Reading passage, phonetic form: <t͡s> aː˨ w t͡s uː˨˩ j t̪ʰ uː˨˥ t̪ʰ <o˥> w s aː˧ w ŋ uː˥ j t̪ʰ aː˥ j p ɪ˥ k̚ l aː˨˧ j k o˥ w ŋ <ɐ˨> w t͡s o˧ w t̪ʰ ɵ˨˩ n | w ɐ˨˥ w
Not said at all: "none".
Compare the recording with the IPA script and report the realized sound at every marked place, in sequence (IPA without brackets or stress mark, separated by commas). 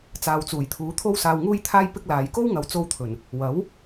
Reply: t͡s, o˥, ɐ˨˧